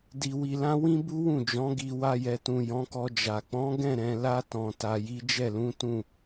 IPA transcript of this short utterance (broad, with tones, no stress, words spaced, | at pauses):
di˧wi˧lã˦ wĩ˦bu˦wũ˦˨d͡ʒɔ̃˨˦ ɡi˧ wa˧jɛ˨tũ˨ jɔ̃˨˦kɔ˧d͡ʒa˨ k͡pɔ̃˨˦ɡɛ̃˦˨ɾɛ̃˨la˧ tɔ̃˨ ta˨ji˨˦ d͡ʒɛ˦˨lũ˨˦tũ˦˨